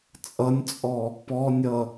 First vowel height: mid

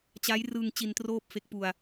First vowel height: low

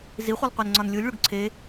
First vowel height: high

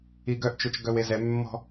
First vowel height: high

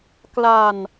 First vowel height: low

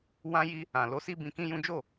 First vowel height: low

